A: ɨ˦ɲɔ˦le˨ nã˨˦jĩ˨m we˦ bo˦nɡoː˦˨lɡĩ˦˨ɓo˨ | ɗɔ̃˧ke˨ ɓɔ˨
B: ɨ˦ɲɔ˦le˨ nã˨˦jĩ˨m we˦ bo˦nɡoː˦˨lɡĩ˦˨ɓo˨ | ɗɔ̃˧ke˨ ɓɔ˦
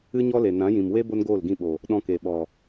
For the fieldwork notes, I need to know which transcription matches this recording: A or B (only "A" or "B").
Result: A